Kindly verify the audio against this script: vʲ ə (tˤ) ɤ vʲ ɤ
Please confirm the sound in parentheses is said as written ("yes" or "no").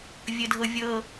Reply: no